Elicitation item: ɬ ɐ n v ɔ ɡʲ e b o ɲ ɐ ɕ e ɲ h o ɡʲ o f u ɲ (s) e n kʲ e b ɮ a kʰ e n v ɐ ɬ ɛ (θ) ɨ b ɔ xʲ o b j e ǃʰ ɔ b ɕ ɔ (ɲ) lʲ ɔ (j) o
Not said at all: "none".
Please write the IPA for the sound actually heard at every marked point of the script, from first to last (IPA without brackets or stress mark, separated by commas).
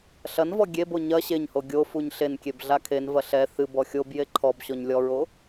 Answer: ɬ, θ, ɲ, ɹ